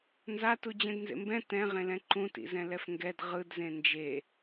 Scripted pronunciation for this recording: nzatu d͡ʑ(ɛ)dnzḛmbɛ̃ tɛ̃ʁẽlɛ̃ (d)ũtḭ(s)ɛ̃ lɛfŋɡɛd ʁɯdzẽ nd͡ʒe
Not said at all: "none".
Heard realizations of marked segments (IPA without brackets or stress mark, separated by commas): ɛ̃, ǃ, z